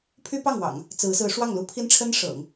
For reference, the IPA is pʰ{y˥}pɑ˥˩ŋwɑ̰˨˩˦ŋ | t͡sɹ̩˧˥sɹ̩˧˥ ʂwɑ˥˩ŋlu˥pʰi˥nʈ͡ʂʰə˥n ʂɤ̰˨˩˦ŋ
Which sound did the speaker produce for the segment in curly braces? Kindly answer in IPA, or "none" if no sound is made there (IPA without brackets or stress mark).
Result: y˥